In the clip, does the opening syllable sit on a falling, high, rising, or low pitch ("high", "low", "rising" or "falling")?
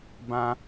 high